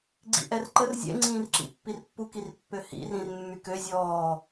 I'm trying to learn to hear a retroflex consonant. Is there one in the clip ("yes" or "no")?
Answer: no